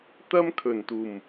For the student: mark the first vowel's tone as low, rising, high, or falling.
high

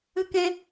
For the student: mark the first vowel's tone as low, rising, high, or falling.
high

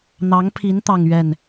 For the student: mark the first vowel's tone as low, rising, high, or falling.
rising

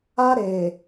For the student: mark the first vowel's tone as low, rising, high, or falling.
high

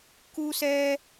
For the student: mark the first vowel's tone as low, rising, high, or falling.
high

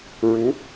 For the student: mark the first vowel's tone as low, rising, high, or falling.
rising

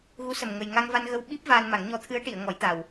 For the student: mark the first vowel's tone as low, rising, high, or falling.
rising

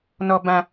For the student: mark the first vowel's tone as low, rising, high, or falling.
high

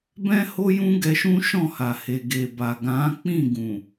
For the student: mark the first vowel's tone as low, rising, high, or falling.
high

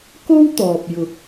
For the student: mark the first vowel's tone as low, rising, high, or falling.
high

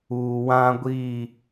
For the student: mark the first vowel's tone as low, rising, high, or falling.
low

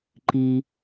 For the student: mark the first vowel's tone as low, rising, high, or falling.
low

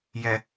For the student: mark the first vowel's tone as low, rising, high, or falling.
low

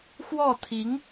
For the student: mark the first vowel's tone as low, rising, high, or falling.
falling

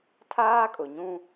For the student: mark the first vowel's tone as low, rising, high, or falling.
high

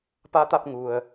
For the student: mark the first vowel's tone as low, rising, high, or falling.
rising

